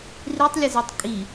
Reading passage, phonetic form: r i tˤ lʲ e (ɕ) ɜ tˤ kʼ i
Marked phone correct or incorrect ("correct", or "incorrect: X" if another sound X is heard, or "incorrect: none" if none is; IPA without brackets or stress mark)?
incorrect: z